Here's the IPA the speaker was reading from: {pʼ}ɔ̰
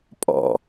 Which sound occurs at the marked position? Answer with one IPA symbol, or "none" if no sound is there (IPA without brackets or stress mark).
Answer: pʼ